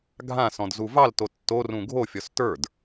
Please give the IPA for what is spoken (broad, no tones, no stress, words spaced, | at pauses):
ɡʱã sɔ̃dzuvɑl totːo rũɡʱo fʲɔstə˞d